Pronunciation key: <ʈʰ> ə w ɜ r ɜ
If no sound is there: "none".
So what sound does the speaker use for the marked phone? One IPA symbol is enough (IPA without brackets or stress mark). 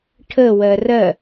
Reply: ʈʰ